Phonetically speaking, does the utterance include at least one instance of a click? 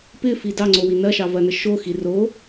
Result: yes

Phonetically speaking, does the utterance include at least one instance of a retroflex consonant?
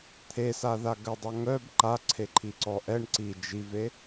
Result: yes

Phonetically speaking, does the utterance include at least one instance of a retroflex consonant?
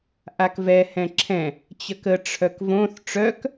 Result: yes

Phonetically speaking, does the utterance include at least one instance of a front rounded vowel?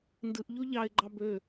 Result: yes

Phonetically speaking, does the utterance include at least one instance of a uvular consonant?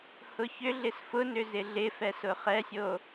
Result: yes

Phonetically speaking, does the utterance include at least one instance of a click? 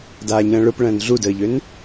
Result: no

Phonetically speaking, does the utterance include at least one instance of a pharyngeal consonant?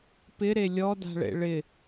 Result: no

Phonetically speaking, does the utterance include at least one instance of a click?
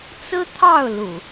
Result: no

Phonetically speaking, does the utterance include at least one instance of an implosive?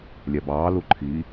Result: no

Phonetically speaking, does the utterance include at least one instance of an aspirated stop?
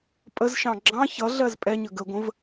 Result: no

